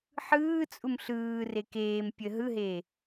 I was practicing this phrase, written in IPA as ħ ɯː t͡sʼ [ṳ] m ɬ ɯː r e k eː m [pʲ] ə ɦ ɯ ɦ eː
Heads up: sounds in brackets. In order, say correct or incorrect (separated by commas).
incorrect, correct